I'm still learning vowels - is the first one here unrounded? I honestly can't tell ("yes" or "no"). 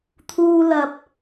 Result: no